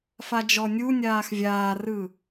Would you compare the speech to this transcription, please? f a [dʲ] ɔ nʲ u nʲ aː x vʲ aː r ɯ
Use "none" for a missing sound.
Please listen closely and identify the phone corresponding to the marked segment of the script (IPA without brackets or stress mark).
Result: d͡ʒ